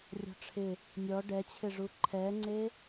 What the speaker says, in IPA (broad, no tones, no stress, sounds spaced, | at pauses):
rʲ ɔ̤ ʈ͡ʂʰ ɪ | nʲ ɔ ɖ ɛ t͡ɕʰ ɪ ʐ u ǃʰ ɛ ŋ͡ǀ e